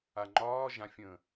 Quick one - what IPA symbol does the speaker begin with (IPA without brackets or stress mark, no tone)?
a